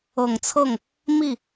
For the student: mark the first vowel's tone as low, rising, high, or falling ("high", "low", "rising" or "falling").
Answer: low